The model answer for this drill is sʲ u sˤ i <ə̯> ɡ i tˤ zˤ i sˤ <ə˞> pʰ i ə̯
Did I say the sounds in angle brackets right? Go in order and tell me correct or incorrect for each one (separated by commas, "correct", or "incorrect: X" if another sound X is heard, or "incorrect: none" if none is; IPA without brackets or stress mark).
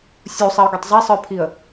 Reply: incorrect: ʊ̯, correct